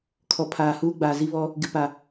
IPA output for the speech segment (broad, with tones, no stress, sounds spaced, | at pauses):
kʰ ɔ˨ pʰ aː˨ h uː˦ ɡ͡b aː˨ z i˦ β ɔ˦ | ɡ ɪ˨ p a˨